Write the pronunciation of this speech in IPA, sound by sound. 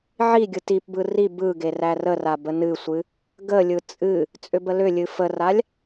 ʕi ɡʲɯtipbɯ ri bɯɡe rærəra bənɨsʷɨ | ɡəlʲɯ t͡sʼɨ | t͡sʼʏbəlʏlʲɨ fəralʲ

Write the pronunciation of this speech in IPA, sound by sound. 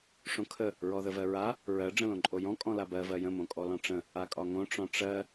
ʂõkʰə | ɹɔðəvɜɹa | ɹɜ ɖ͡ʐə̃lõǃʼojɔ̃ kʼɔ̃labɜ vɜjə̃ mõkʼɔlɔ̃ʈ͡ʂə̃ | akʼɒŋõ ʈ͡ʂɔ̃ʈ͡ʂɜ

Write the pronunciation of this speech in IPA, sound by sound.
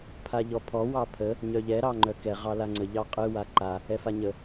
pʰaʎɔpʰɔ wɑpʰə | ɲœʎɛ ɾɑŋ͡ǃœkɛ ʁɑlaŋ͡ǀə ʎɑqʼɨ waǃa | ɛfaɲə

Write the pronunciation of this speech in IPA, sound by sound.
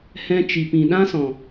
hɛ̃˧t͡ʃi˨ pĩ˨ɗã˦sɔ̃˨

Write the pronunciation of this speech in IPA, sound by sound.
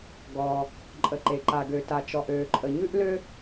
ɡɔː˩ | ǃʼə˩ǃe˩ǃa˩ ɡø˩ta˩t͡ʃɔ˩ʔ øː˩ǃʼə˩ ɲʉ˥ʔlø˥

